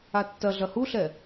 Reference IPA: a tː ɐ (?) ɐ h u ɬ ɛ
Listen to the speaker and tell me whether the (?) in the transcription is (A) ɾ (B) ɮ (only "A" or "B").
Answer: B